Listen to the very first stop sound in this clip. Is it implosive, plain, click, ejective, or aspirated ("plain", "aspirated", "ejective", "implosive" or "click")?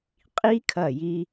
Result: ejective